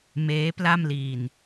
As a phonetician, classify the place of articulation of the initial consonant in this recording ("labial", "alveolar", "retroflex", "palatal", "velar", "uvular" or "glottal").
labial